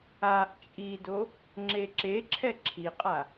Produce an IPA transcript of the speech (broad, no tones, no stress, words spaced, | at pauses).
aʔ t͡ʃʼido | ŋ͡ǁeǁeǁʰɛ ǁʰiqʼa